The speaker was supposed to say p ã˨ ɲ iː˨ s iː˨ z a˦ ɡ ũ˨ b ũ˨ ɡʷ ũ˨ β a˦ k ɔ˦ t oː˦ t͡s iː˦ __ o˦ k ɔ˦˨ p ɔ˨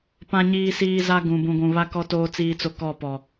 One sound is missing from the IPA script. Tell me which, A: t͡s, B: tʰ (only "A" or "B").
A